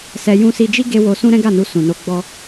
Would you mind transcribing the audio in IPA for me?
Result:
sɛ˧ jũ˧si˧d͡ʒi˦ ɡe˦ wo˧sũ˦ ɾɛ̃˦ɡa˦˨nu˧ sũ˨no˧ɡ͡bɔ˦

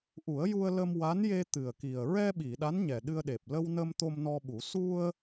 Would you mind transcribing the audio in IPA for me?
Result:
ʔu˨˩˦ə̯ju˧ə̯ lə˧mwa˧˥nje˧ t̪ɨ˨˩ə̯ki˨˩ə̯ ɹɛ˧ ɓi˨˩˨ɗa˧˥n ɲɛ˨˩ɗɨ˧ə̯ɗe˨˩p̚ lə˧wnə˧m t̪o˧mnɔ˧ɓu˨˩˦ su˧ə̯

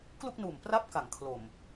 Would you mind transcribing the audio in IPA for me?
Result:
klu˥˩k̚nuː˨˩m pra˦˥p̚ka˩˦ŋ kʰlo˨˩m

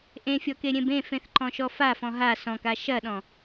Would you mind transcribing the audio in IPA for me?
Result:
ʔẽfʲɔke ɾʲẽbẽfẽθ ǃɔ̃ʃɔfafɔ̃ ɦa sɔ̃ka ʃɐɗɔ̃

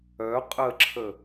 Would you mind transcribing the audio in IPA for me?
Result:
œ qʼəǁʰə

